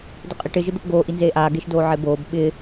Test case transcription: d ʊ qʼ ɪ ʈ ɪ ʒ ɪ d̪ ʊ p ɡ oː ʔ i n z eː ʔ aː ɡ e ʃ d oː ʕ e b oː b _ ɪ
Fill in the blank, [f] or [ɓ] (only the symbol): ɓ